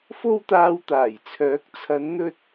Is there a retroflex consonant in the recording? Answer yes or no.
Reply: no